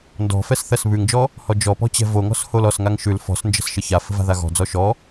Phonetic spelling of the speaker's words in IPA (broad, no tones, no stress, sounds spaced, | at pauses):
n d ɔ̤ f ɛ s θ ɜ s β ʉ ŋ d͡ʒ ɔ | h ɔ d͡ʒ ɔ p ɔ̤ t͡ɕ ɛ̤ v o ŋ ɔ̤ s h o l ɔ s ŋ a ŋ ʃ ʉ l f ɔ̤ s n d͡ʒ ə̤ s ʃ ə ç a f ə̤ v a̤ ð a ɣ ɔ̤ d͡z ɔ ʃ ɔ